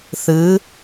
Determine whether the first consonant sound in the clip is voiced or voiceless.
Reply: voiceless